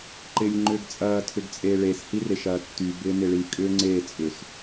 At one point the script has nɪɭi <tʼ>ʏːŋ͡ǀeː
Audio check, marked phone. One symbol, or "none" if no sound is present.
kʼ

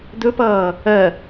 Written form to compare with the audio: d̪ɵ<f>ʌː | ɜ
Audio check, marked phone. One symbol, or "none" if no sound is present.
p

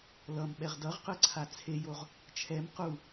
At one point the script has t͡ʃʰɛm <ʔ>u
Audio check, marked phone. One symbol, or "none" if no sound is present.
q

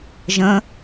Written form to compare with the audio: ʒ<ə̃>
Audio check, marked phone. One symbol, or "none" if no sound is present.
ə̃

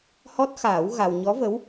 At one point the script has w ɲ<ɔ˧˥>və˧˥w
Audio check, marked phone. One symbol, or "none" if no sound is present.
ɔ˧˥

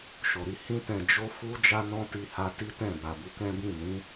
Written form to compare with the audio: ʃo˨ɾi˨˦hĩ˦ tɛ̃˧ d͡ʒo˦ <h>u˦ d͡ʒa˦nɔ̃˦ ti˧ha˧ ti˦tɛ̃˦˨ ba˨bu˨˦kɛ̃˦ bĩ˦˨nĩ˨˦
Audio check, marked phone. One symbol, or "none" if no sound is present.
f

